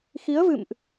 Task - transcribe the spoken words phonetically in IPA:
xi˨˦ə̯vɨ̰˧˨mʔ

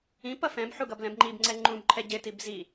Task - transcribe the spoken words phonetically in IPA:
ĩpʌ fɛ̃bħuɡʌb lɛ̃bŋ͡ǃibŋ͡ǀɛ ŋ͡ǃũbǃʰɛ ɟɪ tibzi

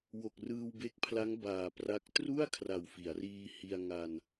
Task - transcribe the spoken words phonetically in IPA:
wo˨˩k̚rɯː˧wbe˦˥k̚pʰla˦˥ŋ baː˨˩pra˦˥k̚ tru˥˩a̯ kʰra˨˩wfi˩˦a̯riː˧hi˧a̯ ŋa˧n

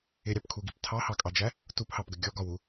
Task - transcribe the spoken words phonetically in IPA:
ɪɾʲɑpkʰuɡip tʰɑhɑkʼɑd͡ʒæ | tuphɑpɡə ɡʲɔɡɒwu

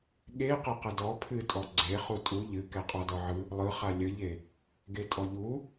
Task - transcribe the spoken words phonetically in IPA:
ɠe qeqədɔ pʰɨtʼɔ ɡ͡ǀe χutʼu ʎɨ kɛqʼɔdɔʕɯ | lˠɯχa lʲəʎe | ɡetʼɔʎu

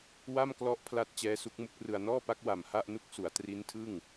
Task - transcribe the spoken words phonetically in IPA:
wa˥˩mklɔ˦˥ʔ pʰla˥˩t̚ t͡ɕɛː˦˥su˦˥k̚ mu˦˥k̚rɯ˧a̯ nɔː˥˩pa˦˥k̚ wa˨˩mha˥˩ʔnu˦˥k̚ su˩˦a̯tri˦˥ntʰɯ˥˩ŋ

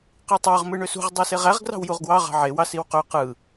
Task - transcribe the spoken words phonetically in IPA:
qitˤɑʁ mɯɳøsṳʁ dˤiseʁæʁ ɡrɑ̤wjuʁɡwɑ ʁɑ̤ʕewɑ siwqø qɯ

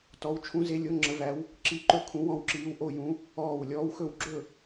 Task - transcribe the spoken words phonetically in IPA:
tɔ˧˥w t͡ʃʰũ˧˥ze˧˥lʲo˧˥ ŋ͡ǁə˧˥væ˧˥w | ǁi˧˥ǃɵ˥˨kʰũ˧˥ wɔ̃˥˨wǁiː˧˥w ʔo˥˨jũ˧˥ | ɔː˥˨w lʲɔː˧˥wxɵ˥˨w ɡ͡ǁɵ˥˨

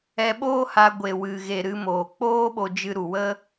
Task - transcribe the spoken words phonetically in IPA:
ɛ˧ɓoː˦ha˧ ɡʷe˨wɨ˨ɣe˨ ɾɨ˧moː˨ k͡poː˦ɓo˧ d͡ʒɨ˧ɾu˨wə˦

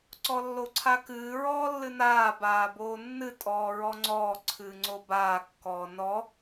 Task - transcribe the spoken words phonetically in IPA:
ǀɔlːoǀʰakɨː ɹɔːlːɨnaː baːboːnːɨ tʼɔːɹɔŋ͡ǀɔː ǀʰɨːŋ͡ǀobaː kːɔːnɔ

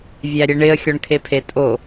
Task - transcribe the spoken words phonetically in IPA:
vʲæɾʲeɳɪə̯ xʲɔɳkʰepʰetʼo

